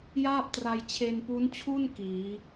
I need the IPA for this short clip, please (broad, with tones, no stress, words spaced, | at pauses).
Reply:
jaː˥˩p̚tra˧j t͡ɕʰe˧npu˦˥nt͡ɕʰu˥˩n kiː˩˦